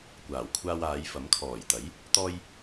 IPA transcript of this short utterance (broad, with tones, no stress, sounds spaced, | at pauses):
kʷ aː˨˩ w kʷʰ aː˧ w aː˨˧ j f ɐ˨˥ m kʰ ɔː˨˩ j t̪ ɐ˨˥ j | t̪ ɔː˧ j